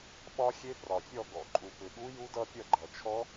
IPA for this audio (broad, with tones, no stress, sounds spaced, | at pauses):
ɓ ɒ˦˥ xʲ e˦˥ p r ɒ˨ fʲ ɔ˥˨ ɡ ɔ̰˨ ǃʼ u˨ p ʏ˨ ɠ u˦˥ j u˦˥ d ʌ˦˥ pʲ ʌ˥˨ ɡ͡ǃ ʌ˨ t͡ʃʰ ɔ˦˥